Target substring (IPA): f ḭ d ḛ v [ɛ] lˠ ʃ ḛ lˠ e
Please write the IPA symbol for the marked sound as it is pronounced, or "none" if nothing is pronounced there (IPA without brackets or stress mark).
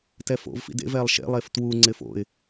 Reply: ɛ